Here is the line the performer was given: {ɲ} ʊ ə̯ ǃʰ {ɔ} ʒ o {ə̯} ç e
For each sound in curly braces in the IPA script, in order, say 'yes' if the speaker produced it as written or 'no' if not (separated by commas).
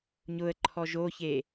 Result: yes, yes, no